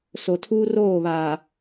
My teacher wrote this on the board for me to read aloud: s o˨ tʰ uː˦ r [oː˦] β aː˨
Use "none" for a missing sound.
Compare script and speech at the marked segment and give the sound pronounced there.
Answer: oː˦˨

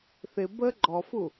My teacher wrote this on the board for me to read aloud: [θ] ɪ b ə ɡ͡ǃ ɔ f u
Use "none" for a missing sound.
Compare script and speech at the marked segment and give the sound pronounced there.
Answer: θ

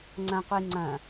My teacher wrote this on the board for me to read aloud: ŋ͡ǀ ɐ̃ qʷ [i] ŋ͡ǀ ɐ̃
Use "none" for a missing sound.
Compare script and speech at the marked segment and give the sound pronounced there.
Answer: i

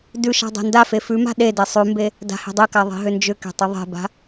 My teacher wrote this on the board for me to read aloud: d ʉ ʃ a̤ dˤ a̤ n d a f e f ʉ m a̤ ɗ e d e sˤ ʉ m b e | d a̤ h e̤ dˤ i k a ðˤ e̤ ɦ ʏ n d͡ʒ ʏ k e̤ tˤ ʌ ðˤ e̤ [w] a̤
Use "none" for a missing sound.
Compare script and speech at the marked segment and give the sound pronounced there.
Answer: b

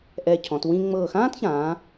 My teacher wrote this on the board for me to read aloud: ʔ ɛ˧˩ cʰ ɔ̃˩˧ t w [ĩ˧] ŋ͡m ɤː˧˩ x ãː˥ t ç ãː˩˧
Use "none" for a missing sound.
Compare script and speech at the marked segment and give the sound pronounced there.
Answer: ĩ˧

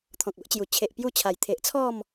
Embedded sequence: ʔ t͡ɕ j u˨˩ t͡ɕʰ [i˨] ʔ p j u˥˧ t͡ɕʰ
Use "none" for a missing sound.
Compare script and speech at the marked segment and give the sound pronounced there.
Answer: e˨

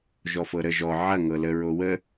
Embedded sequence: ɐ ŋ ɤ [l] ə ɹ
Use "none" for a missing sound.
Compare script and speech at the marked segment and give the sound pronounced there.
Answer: l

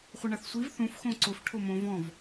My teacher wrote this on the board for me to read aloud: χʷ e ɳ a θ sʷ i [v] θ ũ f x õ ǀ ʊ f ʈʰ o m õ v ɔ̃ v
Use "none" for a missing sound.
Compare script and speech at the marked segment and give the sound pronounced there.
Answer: v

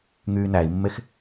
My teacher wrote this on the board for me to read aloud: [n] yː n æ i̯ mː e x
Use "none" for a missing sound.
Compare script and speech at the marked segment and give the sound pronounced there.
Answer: ŋ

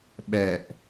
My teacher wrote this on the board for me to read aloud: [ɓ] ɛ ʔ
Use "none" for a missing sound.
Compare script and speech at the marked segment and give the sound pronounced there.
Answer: ɓ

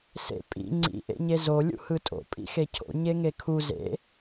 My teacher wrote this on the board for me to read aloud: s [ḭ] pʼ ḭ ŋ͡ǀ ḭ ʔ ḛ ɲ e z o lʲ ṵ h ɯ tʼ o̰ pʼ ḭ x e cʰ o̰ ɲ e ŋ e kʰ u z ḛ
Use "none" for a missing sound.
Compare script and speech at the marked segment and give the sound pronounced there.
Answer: ḛ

